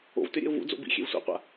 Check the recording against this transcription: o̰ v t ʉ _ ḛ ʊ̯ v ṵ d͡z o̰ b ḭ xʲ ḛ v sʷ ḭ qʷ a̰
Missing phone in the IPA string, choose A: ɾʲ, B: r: A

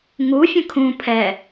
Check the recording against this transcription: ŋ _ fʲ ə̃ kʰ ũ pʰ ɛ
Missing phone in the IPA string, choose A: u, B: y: A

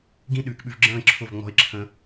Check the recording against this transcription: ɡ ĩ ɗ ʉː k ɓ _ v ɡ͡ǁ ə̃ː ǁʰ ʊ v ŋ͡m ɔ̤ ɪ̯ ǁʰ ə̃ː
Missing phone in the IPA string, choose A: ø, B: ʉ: B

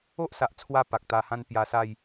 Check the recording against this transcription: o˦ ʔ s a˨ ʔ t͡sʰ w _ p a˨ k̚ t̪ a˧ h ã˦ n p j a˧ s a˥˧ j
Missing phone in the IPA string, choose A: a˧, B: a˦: A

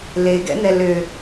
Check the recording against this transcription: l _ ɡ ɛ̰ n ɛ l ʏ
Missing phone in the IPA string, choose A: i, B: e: B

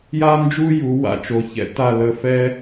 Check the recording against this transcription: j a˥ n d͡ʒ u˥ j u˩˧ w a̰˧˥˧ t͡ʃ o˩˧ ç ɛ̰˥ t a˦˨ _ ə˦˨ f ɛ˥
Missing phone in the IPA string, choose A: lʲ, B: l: B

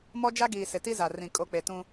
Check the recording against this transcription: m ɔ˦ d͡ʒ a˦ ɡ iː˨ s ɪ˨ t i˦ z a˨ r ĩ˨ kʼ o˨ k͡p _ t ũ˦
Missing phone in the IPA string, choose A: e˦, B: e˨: B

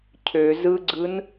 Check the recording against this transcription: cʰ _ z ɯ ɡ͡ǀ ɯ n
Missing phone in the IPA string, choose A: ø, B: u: A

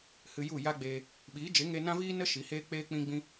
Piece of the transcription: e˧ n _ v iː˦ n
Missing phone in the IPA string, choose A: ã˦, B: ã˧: A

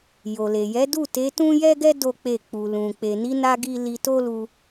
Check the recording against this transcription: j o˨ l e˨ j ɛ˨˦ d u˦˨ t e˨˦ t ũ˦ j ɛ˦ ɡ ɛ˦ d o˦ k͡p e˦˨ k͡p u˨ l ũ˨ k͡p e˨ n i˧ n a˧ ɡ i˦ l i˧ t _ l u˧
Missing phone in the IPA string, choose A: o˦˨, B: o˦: B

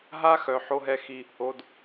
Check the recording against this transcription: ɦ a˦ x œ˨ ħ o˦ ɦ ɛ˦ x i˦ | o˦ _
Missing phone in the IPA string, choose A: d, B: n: A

